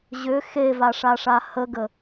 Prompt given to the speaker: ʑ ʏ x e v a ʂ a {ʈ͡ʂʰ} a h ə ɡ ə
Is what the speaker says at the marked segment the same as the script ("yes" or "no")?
no